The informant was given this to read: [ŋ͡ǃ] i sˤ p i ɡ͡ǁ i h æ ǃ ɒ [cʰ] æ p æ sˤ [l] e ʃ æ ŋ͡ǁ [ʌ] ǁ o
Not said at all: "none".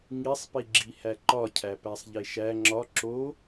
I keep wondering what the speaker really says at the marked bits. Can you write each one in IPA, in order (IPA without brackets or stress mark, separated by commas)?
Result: ŋ, cʰ, ʎ, ɒ